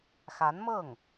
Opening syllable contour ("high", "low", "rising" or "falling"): rising